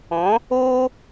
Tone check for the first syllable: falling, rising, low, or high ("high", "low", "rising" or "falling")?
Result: rising